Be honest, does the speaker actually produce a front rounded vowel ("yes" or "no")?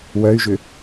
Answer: yes